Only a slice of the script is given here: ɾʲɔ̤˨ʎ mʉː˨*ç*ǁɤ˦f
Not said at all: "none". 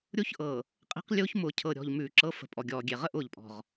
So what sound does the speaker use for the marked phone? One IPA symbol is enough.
none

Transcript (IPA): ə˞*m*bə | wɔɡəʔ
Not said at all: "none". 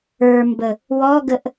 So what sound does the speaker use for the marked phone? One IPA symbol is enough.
m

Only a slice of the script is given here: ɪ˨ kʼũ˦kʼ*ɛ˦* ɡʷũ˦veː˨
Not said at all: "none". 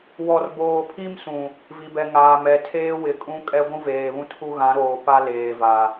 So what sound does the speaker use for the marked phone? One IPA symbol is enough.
ɛ˦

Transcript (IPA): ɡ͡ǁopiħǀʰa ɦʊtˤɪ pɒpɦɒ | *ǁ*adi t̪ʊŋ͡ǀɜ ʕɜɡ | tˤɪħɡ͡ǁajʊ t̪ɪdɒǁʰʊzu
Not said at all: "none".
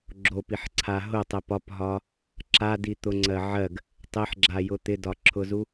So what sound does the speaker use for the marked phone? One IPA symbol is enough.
ǁ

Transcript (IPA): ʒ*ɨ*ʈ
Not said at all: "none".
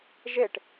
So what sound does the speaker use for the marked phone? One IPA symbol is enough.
e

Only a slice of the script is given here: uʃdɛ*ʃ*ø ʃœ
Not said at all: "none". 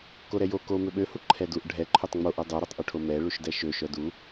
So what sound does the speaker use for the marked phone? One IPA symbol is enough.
ʃ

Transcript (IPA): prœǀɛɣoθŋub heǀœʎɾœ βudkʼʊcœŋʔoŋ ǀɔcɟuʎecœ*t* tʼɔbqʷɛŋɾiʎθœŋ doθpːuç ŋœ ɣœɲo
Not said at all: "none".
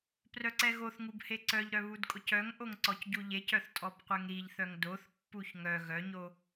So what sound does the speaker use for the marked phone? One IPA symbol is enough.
θ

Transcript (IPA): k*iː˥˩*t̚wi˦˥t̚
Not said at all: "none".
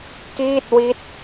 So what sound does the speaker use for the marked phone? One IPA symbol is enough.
iː˥˩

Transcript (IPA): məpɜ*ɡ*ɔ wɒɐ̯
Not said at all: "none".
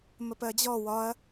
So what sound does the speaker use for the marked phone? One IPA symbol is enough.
d͡ʑ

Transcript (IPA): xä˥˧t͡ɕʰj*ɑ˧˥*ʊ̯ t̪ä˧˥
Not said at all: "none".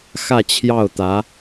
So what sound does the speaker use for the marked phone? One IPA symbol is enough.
ɑ˥˩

